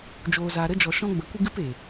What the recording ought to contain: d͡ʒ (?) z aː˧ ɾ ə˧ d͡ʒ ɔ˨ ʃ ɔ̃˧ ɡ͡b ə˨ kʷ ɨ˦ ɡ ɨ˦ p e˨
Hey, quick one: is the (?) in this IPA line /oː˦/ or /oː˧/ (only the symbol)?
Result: oː˧